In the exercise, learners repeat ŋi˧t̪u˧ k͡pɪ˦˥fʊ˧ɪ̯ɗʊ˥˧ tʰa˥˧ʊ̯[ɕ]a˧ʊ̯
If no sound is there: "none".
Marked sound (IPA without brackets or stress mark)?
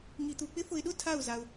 z